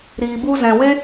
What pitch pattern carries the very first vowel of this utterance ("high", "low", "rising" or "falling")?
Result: low